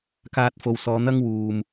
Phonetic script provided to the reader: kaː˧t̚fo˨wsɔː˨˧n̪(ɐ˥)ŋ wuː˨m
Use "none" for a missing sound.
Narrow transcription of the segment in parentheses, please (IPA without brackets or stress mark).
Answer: ɐ˥